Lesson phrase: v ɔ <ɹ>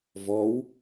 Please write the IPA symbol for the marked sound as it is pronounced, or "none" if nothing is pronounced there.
w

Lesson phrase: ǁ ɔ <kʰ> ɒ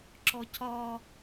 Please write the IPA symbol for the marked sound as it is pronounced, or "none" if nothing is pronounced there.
cʰ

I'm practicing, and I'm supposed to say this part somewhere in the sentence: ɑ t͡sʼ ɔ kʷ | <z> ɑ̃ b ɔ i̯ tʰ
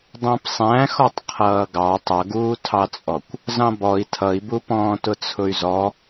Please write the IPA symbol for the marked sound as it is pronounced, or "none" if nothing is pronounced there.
z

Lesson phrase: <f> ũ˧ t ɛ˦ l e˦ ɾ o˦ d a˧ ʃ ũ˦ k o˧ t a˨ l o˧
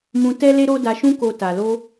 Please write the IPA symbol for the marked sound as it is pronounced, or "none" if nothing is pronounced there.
m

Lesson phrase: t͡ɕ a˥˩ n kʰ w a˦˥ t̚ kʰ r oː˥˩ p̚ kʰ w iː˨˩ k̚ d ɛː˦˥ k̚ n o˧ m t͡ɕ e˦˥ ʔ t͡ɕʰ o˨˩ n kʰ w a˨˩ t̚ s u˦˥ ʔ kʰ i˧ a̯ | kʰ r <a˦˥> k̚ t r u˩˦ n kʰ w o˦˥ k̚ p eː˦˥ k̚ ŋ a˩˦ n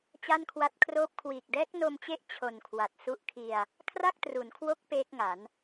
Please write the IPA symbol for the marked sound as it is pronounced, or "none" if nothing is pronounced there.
a˥˩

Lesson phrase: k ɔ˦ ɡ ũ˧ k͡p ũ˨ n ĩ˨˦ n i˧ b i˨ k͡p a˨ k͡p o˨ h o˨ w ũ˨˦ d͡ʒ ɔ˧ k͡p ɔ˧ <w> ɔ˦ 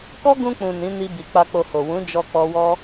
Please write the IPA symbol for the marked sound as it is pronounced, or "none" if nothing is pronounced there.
w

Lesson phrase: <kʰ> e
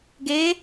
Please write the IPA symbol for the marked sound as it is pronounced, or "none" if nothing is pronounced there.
ɡ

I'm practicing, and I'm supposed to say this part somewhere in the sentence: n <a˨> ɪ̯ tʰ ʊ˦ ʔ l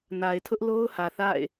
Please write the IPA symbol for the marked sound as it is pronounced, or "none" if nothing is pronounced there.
a˨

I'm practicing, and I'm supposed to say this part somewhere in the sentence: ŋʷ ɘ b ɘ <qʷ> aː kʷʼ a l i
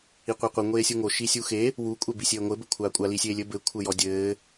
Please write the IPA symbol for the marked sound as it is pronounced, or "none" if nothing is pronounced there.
kʷʰ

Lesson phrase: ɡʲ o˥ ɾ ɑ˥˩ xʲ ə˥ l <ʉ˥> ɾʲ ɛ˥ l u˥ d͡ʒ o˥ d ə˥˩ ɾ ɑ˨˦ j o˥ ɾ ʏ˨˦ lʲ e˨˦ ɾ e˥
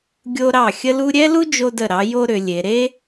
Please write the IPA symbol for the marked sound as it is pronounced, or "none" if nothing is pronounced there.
u˥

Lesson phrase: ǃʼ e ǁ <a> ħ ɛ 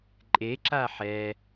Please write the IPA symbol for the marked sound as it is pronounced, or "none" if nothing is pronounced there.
a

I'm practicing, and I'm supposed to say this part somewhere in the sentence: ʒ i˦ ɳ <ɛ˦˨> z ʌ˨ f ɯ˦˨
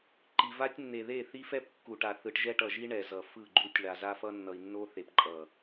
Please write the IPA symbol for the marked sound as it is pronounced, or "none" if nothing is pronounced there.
ɛ˨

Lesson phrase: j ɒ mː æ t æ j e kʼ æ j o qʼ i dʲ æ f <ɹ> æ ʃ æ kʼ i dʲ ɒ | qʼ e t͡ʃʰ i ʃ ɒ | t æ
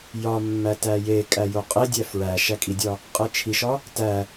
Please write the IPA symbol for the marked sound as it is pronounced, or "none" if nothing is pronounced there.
ɹ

